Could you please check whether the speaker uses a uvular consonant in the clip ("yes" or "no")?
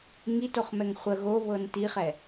yes